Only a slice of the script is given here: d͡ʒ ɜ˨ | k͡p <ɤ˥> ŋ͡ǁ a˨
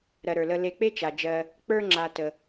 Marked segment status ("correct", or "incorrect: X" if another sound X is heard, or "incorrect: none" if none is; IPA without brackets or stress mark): incorrect: ə˞˥